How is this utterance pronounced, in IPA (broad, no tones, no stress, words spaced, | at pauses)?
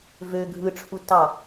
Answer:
vø ɡʱɯʈ͡ʂʰutːɑ